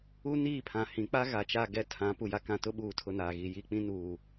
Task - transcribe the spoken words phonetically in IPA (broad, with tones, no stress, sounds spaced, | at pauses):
u˦ n iː˦˨ pʰ ã˨ h ĩ˨˦ k͡p a˦ ɣ a˨ t͡ʃ a˦˨ ɡ ɛ˦˨ tʰ ã˨˦ p u˨ j a˦ k ã˦˨ t ʊ˦ ɓ uː˨ tʰ ʊ˨ n aː˨ ɣ i˨ j i˦˨ k͡p ĩ˦ n uː˨